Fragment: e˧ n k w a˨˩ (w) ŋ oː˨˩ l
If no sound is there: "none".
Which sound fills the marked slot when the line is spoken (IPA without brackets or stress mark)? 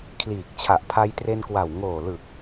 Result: w